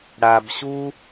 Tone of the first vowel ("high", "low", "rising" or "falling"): low